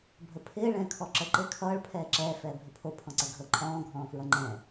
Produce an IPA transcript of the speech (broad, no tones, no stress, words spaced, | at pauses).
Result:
bʱəpʰɪː ɭɛ̃ːkʰɔǁə ǃɪːkʰʌːɭ pʰɛːǁɛː fɛːbʱɪpʰo pʰɔ̃ǀɛɡʱɤ ǃʼɔ̃ː ɡʱɔ̃ːfɹʌŋ͡ǃɛ̃